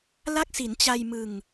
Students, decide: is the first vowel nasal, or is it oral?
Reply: oral